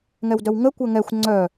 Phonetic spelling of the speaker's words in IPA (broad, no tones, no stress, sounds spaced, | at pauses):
ŋ ɛ w d œ w ŋ ə kʷ əː ŋ ɛ xʷ ŋ͡ǀ œ